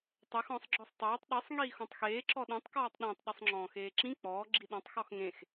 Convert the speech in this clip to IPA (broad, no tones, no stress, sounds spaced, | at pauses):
tˤ ɛ x ɔ̃ sˤ ɡ͡ǁ ɔ sˤ tˤ eː tˤ ɗ i sˤ ŋ iː x ɔ̃ tˤ x eː ǁ ɔ ɗ ɛ̃ tˤ k ɔː tˤ ɗ ẽ tˤ ɗ ɘ sˤ ŋ͡ǁ ɔ̃ː x eː ǁ ĩ k͡p ɔː ɡ͡ǁ i ɗ ɔ̃ tˤ x ɔ x ŋ ẽ x